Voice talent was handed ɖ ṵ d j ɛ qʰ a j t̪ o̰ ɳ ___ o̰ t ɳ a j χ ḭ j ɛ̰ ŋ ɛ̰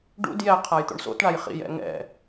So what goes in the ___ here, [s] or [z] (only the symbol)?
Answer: s